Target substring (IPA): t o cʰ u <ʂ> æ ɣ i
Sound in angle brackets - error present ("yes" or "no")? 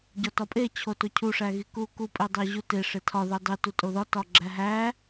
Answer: no